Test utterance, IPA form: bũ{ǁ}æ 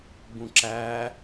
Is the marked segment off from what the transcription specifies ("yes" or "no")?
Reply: no